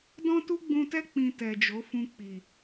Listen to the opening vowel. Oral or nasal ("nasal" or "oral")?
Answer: nasal